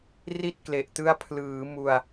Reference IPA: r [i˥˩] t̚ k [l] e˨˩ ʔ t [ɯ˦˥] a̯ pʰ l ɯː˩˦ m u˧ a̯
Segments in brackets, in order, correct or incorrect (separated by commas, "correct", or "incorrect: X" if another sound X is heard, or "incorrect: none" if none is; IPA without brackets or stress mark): correct, correct, correct